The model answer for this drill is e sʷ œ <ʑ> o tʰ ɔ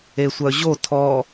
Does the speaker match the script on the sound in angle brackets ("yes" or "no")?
yes